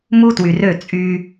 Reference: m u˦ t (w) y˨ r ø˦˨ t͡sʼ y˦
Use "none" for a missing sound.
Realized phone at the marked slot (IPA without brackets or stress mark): w